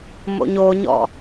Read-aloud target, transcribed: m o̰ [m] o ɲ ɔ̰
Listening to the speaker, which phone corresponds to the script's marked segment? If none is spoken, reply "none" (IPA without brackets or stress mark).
ɲ